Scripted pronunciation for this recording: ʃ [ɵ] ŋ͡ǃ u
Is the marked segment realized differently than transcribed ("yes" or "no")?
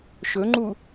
no